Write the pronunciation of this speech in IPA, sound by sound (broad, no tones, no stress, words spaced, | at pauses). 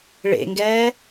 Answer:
ɭḛŋɡɛː